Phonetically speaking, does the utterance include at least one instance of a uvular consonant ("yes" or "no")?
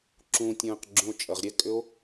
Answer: yes